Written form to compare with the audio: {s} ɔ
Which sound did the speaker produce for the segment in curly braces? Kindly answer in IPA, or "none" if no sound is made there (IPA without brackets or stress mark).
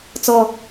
t͡s